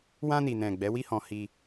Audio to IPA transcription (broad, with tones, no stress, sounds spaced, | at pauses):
w ã˧ n i˨ n ɛ̃˨ ɡ͡b ɛ˨˦ w i˦ h ɔ̃˧ h i˧